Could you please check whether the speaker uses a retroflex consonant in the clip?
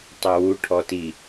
yes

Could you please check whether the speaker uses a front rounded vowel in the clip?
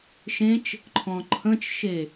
no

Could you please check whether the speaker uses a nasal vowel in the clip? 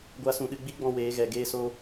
yes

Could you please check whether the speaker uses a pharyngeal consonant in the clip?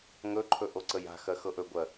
no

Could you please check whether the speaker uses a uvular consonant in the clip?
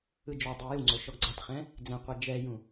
yes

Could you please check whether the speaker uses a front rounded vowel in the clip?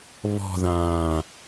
no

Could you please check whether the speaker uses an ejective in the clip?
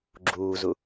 no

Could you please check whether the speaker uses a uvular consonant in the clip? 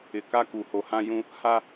no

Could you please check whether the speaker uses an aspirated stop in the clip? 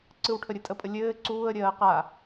yes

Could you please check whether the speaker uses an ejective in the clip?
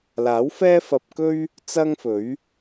no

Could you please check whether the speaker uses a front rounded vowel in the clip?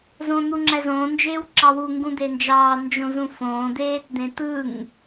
no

